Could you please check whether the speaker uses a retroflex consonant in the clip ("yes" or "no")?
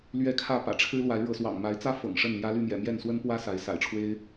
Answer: yes